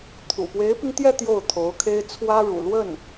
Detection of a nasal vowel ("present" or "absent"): absent